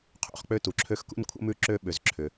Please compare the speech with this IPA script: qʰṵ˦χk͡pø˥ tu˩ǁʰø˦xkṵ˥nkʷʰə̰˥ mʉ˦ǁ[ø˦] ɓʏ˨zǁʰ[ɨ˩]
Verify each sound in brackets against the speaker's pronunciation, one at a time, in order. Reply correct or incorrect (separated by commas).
correct, incorrect